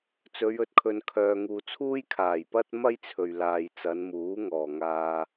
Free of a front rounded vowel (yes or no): no